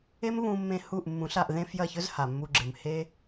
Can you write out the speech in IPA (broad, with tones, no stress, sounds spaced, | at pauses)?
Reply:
e˦ m β ũ˧ mː ẽ˧ h u˦˨ ʔ mː ũ˨˦ ɬ a˧ ʔ ð ẽ˦ f j ɐ˦˨ ç ɵ˦ z h a˨ mː u˧ ɡ͡ǁ ɨ˨ m h e˦